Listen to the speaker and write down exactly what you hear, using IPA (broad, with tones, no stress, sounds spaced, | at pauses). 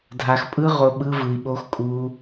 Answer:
dʱ a˧ x pʼ ɯ˦ ʁ o˧ ɓ ɯ˦ v ɯ˧ i̯ ɓ o˦ x kʼ u˦